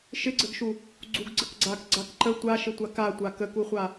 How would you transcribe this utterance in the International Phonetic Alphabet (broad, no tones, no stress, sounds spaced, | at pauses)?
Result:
ʃ ɪ ɡ͡ǀ ə ɡ ʃ u | ɡ͡ǀ u ɡ ɡ͡ǀ ə k ɡ͡ǀ a k ɡ͡ǀ a k ǃ ə tʷ a ʃ ɪ tʷ a k a tʷ a k ə k u χʷ a